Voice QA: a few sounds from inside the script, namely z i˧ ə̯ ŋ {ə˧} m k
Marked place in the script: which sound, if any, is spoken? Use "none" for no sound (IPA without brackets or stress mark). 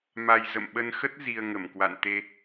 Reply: ə˧˩